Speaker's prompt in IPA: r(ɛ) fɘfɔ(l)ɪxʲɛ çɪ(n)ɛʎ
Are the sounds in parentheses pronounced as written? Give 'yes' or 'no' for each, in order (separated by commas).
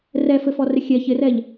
yes, no, no